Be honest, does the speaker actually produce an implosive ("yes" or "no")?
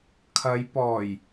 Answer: no